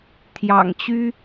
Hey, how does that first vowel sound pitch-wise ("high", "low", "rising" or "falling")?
low